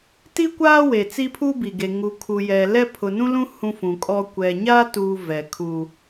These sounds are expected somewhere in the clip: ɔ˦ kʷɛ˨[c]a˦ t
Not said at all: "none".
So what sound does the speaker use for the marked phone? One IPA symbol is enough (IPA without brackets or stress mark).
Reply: ɲ